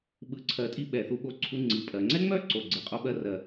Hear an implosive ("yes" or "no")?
yes